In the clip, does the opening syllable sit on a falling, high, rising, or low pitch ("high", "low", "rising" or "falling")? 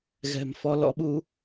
low